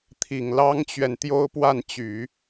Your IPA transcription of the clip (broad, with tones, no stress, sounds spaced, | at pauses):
t̪ʰ i˨˩ ŋ l ɑ˥ ŋ t͡ɕ ɥ ɛ˨ n t̪ j o˥ ʊ̯ p w a˥˩ n t͡ɕ y˨˩˦